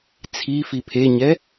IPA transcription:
t͡sʰ i f i pʰ e ɲ ɛ

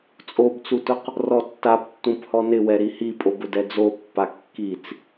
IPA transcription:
t͡sʼ o b t͡s u t ʊ q | r ɔ tː a p tː ũ p h ɔ n ɪ w ɛ ɾ i h i pʼ o b ʊ d ɛ d͡z o pː a kː i t͡s

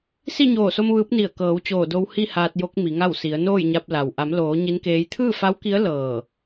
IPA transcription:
s i˥˨ ɲ oː˧˩ s o˧ m ʋ ɯː˧˥ p̚ n i˧˩ ə̯ k ɤː˩˧ w t͡ɕ oː˧˩ d o˧ w h i˥˨ h aː˧ t̚ j o˧˥ k̚ m i˩˧ ŋ a˥˨ w s i˩˧ ə̯ n oː˥˨ j ɲ a˧ p̚ l a˩ w ʔ a˩˧ m l oː˩˧ ɲ i˧˥ n k eː˧˥ j t̪ʰ ɯː˥˨ f a˧˥ w k i˧˥ ə̯ l ɤː˧˩

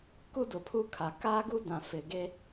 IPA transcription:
k u˦ d ʊ˨ pʰ u˦ kʰ a˨ k a˦ ɡ u˦ d ã˨ f ɪ˨ ɡ e˦

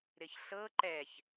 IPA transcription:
ɾ ɪ ç ɬ ɤ ǃ ɛ ç

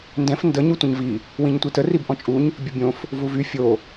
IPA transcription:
n d ɛ̃ f n d ə ɲ u tʷ ə̃ ɲ v i | w ĩ ɲ tʷ i t ə r i b ʔ ɔ̃ t͡ʃʼ u ɲ | bʲ ə bʲ õ f | v u v y fʲ o

